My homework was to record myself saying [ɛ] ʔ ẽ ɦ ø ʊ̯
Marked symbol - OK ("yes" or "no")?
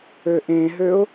no